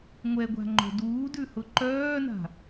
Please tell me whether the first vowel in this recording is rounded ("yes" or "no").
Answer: no